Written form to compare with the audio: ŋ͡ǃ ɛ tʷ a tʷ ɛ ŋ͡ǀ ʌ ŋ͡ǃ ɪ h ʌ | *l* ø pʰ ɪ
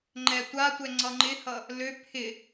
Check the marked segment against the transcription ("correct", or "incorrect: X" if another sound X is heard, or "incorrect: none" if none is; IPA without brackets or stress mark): correct